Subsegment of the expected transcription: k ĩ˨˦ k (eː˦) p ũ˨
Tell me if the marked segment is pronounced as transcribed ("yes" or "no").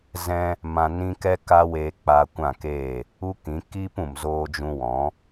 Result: no